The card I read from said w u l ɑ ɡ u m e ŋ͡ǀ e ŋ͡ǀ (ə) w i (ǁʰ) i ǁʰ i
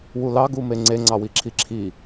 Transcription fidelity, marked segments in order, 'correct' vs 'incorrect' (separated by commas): incorrect, correct